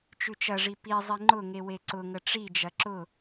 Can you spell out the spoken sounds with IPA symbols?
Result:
t͡ʃ ʉ t͡ʃ ɐ ʐ i p i zˤ i ŋ͡ǃ ʊ ŋ e w e ǀ ʊ ŋ ə ʈ͡ʂ i d͡ʒ ɐ ǁ ʊ

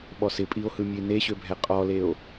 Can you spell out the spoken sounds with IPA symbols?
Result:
ɓ ɔ s ɪ pʼ i o̯ h ɯ mʲ ɯ e̯ n e ɕ ø bʱ ɛ qʼ ɔ l e o̯

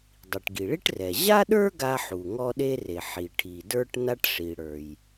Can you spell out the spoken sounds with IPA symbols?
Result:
dˤ i˩ ʈ ɡ i˩ ɭ i˥ ʈ r ɛ˩ ʑ a˥ ɗ ə˞˥ ɡ a˥ ħ u˩ ŋ ɔ˥ ɗ e˥ r e˩ ħ i˩ ʈʰ i˩ d ə˞˥ ʈ n a˥ ʈ ʂ i˩ ɽ ə˞˩ j

